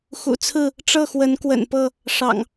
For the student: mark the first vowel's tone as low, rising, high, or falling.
low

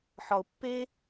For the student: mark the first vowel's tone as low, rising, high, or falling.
low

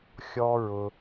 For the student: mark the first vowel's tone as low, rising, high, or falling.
high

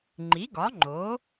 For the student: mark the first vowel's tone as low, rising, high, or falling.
rising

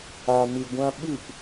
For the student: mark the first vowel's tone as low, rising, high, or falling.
low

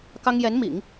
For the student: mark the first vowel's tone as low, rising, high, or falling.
high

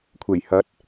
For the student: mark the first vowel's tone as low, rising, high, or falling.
low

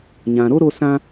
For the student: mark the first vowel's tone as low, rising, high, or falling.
low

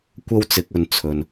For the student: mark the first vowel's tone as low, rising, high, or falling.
high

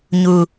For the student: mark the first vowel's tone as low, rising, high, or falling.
low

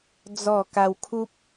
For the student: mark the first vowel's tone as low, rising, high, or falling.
falling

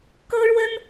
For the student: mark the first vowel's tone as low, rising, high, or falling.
high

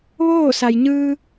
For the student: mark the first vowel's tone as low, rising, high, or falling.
falling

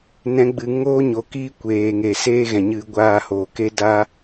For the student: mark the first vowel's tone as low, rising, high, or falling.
rising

